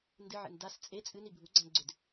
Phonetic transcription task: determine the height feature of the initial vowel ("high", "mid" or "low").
high